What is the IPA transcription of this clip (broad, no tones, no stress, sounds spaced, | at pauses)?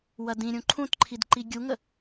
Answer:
w ɐ d ĩ ɾʲ ũ ǃʰ ũ t ǃʰ i d ǃ i ɡʲ u ŋ ə